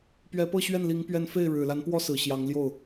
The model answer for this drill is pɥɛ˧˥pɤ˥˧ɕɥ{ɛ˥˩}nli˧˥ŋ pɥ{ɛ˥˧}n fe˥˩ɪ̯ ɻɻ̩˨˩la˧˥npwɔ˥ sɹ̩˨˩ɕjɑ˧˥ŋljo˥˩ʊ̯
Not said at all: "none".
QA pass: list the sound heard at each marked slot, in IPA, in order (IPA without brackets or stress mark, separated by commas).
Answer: ɛ˥˩, ɛ˥˧